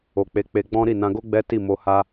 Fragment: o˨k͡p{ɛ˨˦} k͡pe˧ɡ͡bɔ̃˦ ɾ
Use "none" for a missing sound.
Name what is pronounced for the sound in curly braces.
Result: e˨˦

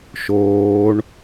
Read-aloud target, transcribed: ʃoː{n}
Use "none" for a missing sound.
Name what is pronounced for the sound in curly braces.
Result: ɳ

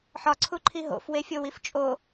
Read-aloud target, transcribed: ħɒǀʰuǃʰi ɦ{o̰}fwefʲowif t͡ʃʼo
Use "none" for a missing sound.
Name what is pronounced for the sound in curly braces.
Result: o̰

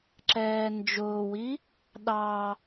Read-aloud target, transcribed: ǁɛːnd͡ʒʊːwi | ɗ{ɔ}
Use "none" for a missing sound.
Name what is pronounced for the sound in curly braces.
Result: ɑ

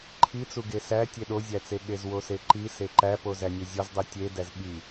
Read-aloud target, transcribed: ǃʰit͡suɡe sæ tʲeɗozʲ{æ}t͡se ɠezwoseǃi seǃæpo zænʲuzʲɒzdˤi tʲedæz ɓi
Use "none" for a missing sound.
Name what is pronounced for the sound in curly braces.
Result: æ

